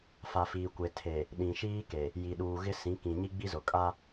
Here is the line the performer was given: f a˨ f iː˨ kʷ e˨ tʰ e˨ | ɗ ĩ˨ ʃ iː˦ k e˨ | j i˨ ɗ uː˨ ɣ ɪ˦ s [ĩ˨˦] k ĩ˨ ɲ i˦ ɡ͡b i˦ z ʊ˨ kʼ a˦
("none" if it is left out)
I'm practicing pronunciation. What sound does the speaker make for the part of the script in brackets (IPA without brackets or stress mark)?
ĩ˨˦